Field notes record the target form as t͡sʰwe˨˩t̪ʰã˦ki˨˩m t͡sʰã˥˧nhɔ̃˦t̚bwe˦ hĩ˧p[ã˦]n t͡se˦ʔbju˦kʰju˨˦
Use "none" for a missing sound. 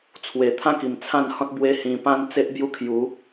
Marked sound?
ã˦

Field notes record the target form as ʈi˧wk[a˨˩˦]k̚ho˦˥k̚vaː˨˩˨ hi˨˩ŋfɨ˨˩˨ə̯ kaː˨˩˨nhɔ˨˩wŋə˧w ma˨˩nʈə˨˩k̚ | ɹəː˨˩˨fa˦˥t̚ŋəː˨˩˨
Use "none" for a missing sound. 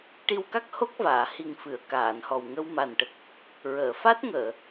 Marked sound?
a˦˥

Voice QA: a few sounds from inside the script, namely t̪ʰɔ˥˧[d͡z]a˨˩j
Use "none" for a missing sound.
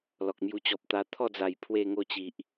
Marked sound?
d͡z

